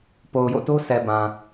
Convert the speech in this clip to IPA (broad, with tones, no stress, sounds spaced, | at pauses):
p o˨ ʊ̯ j o̰˦˨ t o˦ sʰ ɛ˨ b ã˨